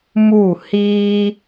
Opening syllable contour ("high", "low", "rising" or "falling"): falling